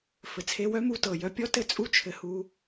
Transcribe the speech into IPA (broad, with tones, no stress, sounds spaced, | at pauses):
f ɘ˨ t͡sʰ e˧ w œ˦ m u˧ t ɤ˨ j œ˧ pʲ ɔ˦ t ɘ˦˨ t͡sʼ u˦ t͡ʃʰ ɘ˧ h u˧